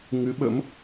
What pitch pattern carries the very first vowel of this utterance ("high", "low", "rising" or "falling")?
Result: rising